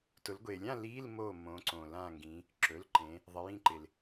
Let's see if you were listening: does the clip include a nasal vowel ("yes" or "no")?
yes